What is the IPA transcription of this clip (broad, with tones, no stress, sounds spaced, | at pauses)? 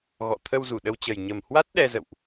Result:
ɣ ɔ̰˧˨ t̪ʰ ə˧ w z u˧˩ ɗ ə˧ w t͡ɕ ə˨˩ j ɲ ə˨˩ m h w a˦˥ t̚ ɗ ɛ˧ z ə̰˧˨ w ʔ